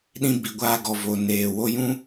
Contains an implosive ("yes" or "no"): yes